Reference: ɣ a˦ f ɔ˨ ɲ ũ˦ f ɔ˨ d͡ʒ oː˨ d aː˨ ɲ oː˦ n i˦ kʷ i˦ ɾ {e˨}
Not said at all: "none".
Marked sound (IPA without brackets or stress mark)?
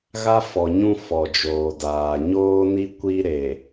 e˨